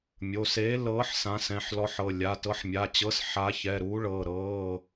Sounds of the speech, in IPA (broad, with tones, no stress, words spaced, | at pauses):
mʲo˩˧˩seː˨˥lɤː˨˥ħ sã˨˥sɛ̃˩˧˩ħ lɔ˨˥ħɤ˩˧˩ lʲa˩˧˩ tɤ˨˥ħmʲa˩˧˩t͡ɕɤ˨˥s ħa˨˥çɛ˩˧˩ɾuː˨˥ɭɤː˩˧˩ ɾɤː˩˧˩